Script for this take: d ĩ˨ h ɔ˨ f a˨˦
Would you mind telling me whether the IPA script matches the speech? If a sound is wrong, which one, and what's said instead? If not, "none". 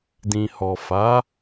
none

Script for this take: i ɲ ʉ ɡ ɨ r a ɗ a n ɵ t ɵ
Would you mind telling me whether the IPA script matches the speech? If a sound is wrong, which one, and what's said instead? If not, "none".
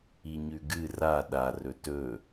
n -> r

